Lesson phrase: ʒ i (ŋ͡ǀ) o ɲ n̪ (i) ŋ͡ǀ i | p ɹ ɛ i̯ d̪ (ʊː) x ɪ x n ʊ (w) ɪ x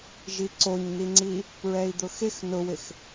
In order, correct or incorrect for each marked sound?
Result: incorrect: ǀ, correct, incorrect: ʊ, correct

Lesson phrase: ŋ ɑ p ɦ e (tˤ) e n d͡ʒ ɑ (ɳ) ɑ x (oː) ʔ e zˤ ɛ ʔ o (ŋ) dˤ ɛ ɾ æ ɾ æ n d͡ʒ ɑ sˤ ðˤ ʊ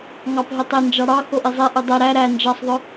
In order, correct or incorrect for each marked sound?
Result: correct, incorrect: ɽ, incorrect: o, incorrect: none

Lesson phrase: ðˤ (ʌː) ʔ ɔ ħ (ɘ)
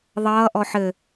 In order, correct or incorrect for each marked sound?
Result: correct, correct

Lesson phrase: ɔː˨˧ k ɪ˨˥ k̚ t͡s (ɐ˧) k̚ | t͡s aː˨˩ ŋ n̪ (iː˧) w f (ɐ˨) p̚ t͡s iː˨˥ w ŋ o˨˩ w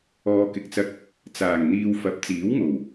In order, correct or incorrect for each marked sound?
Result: correct, correct, incorrect: ɐ˨˥

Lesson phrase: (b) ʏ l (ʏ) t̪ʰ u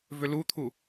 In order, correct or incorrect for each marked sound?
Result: incorrect: v, incorrect: u

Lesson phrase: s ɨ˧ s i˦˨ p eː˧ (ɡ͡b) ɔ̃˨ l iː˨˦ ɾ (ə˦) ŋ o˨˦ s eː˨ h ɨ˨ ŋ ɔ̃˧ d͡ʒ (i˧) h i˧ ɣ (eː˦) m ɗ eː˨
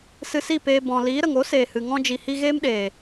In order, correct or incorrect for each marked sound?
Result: incorrect: b, incorrect: ə˨, incorrect: i˨, correct

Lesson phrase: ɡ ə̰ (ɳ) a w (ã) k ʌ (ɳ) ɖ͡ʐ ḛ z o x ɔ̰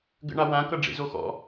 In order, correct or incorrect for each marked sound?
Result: correct, correct, incorrect: none

